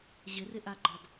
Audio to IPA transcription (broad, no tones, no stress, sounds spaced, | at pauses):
ʑ ɪ r ɪ ʔ a ɡ͡ǃ ɔ d